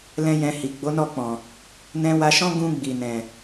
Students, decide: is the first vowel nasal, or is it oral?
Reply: nasal